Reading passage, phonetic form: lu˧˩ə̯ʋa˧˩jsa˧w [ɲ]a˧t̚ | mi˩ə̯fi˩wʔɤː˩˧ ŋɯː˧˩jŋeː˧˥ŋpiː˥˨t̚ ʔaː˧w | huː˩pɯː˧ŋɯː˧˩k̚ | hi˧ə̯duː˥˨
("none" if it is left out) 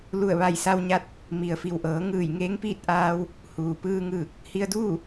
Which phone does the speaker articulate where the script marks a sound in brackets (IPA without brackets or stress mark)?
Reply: ɲ